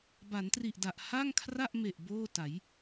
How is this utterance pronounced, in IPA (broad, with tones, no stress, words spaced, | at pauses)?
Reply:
ba˩˦ntri˨˩ʔda˨˩ʔ ha˥˩ŋkʰra˥˩ʔme˨˩ʔ boː˥˩ta˩˦j